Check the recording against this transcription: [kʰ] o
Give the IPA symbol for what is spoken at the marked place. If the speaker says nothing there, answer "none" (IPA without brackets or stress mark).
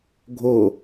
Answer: ɡʱ